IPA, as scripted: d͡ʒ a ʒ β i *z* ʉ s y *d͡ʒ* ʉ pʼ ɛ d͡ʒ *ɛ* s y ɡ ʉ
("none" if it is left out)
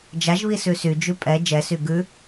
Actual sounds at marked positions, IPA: s, d͡ʒ, ɛ

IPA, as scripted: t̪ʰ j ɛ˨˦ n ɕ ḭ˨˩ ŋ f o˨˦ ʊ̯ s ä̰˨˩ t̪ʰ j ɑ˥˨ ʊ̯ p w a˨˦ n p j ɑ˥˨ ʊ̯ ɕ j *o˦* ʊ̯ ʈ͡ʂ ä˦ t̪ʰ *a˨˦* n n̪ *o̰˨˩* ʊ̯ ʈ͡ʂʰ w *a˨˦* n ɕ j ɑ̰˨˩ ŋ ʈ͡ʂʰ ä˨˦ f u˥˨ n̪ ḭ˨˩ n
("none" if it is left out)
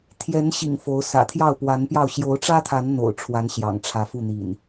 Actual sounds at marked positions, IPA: o˨˦, a˨˦, o̰˨˩, a˨˦

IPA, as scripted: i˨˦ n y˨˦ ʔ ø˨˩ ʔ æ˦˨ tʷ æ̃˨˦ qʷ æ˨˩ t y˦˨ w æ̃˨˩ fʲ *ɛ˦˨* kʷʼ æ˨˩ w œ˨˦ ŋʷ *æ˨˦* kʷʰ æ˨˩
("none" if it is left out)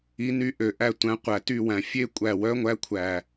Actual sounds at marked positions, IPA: e˦˨, æ˨˦

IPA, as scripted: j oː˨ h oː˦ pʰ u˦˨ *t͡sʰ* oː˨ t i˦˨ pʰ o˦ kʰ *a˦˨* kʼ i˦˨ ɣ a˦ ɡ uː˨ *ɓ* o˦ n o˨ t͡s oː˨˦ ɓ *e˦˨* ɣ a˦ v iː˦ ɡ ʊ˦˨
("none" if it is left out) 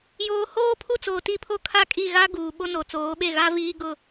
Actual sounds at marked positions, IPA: t͡s, a˦˨, ɓ, e˦˨

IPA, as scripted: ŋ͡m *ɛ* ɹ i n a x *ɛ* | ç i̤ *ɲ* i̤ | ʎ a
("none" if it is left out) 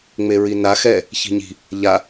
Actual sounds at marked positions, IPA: e, ɛ, ɲ

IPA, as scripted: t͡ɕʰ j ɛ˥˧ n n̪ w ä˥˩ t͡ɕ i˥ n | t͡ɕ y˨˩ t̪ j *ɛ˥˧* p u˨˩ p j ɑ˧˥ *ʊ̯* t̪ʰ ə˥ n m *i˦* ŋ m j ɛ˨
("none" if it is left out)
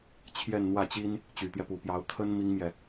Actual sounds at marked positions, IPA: ɛ˦, ʊ̯, i˥

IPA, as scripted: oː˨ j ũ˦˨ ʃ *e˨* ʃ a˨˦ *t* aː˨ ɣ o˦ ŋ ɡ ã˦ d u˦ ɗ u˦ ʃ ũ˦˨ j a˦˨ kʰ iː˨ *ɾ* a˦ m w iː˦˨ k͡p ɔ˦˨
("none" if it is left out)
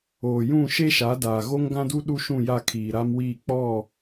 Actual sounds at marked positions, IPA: e˦, d, ɾ

